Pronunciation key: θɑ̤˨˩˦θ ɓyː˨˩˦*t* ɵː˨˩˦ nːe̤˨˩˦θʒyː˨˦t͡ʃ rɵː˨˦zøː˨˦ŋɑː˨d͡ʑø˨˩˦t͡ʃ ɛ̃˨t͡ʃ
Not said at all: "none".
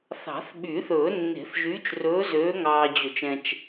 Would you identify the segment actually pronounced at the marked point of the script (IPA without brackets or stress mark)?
θ